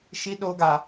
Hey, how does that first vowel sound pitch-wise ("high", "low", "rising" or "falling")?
high